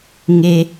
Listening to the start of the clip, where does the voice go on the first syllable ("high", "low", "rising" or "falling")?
low